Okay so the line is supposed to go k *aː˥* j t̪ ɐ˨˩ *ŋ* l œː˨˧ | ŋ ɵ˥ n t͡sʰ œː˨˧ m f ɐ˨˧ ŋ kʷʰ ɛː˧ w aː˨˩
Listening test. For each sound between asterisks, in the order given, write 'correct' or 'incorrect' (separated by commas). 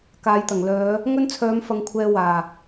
incorrect, correct